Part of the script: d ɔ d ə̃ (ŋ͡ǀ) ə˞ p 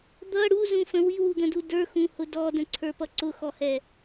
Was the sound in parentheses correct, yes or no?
no